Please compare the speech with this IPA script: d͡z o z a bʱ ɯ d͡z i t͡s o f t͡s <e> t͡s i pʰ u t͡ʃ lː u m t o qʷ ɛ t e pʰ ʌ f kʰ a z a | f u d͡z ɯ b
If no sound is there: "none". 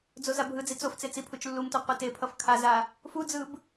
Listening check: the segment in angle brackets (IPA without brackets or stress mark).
e